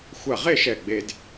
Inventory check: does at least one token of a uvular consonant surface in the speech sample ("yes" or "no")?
yes